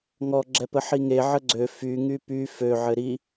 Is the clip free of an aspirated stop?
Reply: yes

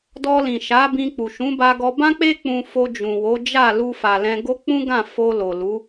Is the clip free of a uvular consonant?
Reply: yes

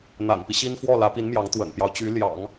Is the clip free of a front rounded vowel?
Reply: no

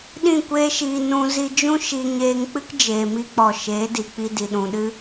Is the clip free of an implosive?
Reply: no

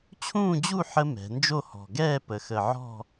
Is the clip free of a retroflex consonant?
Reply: yes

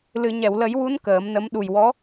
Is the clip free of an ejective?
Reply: yes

